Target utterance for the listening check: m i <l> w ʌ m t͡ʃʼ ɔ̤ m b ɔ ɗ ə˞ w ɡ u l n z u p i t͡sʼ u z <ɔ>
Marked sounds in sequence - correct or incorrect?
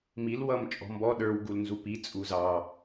correct, incorrect

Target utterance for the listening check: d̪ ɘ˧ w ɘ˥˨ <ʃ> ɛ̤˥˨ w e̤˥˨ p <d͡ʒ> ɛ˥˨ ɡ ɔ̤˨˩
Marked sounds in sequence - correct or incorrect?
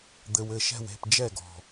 correct, correct

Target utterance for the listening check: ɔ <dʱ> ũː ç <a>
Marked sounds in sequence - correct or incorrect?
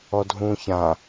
correct, incorrect

